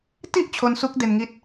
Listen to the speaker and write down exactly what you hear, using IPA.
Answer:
t i˦˥ ʔ t͡ɕʰ o˦˥ n s u˦˥ k̚ d e˧ n ŋ i˦˥ t̚

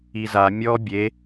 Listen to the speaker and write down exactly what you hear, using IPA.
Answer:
i z a mʲ ɔ bʲ e

